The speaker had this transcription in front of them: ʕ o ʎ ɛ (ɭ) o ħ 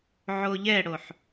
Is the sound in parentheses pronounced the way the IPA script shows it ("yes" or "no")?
no